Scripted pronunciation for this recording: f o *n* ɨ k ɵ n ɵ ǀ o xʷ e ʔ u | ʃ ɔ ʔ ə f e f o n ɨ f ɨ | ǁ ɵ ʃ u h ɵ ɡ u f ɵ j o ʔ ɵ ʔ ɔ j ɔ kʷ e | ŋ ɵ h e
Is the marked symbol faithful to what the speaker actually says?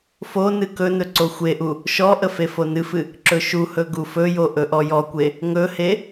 yes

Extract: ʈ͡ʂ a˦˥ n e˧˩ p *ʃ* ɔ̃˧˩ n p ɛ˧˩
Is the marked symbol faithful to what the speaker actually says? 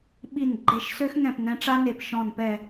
yes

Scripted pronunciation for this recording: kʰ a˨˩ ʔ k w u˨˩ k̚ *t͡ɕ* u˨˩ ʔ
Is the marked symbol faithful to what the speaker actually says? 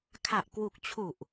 no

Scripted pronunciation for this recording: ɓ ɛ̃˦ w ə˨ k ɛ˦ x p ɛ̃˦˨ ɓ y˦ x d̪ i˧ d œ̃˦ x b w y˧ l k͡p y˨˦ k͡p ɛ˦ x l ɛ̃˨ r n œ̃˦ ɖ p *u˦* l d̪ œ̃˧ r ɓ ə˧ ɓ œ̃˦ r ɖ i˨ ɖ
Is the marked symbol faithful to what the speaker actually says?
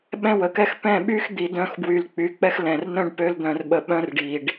no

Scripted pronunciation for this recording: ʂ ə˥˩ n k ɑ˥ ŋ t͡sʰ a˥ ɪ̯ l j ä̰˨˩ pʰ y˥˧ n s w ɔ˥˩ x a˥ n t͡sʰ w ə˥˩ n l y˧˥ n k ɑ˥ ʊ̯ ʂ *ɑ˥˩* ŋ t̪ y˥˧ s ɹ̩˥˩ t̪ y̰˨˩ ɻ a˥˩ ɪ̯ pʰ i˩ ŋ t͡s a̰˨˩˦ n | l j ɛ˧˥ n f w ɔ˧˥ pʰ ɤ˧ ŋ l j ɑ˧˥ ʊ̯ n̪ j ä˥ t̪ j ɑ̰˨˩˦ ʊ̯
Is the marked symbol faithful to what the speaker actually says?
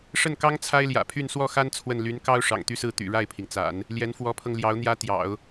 no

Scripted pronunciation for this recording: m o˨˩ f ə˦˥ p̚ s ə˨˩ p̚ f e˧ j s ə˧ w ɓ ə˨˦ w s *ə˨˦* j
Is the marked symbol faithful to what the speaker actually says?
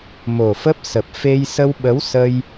no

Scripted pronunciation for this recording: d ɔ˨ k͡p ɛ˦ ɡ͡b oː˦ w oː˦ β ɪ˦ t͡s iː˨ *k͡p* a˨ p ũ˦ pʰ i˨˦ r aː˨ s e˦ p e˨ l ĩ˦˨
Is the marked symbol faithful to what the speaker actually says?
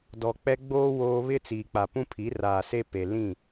yes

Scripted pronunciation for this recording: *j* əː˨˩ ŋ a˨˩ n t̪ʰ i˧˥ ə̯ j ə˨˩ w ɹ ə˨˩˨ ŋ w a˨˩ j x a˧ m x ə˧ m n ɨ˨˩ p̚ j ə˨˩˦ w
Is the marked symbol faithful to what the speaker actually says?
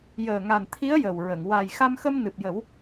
yes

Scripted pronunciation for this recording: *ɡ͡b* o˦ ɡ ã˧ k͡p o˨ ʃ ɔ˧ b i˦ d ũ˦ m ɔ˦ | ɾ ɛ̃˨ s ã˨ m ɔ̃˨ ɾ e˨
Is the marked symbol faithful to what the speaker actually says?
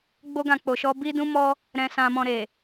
yes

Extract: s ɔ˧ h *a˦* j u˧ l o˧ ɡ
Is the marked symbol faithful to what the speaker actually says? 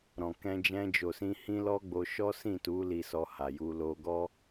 no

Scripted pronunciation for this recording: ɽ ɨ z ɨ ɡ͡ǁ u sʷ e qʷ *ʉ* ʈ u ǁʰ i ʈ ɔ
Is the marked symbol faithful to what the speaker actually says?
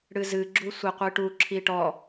no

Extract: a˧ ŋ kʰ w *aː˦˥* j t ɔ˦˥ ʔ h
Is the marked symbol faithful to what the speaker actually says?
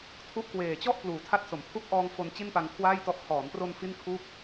no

